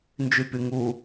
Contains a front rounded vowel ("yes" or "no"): yes